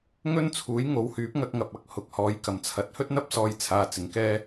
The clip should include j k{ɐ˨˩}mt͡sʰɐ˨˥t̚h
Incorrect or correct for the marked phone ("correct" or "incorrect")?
correct